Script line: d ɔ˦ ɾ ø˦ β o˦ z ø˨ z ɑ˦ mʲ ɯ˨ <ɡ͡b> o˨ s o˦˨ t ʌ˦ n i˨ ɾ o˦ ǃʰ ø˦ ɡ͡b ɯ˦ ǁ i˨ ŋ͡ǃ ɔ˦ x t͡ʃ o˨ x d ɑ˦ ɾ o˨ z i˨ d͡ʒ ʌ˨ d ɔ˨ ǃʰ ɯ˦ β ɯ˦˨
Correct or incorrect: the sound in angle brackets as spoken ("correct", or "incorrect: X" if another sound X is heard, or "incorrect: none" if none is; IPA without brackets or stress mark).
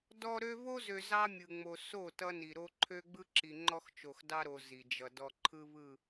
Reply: incorrect: ŋ͡m